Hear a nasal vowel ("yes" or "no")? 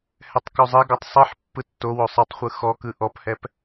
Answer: no